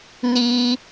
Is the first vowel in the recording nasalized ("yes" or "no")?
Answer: no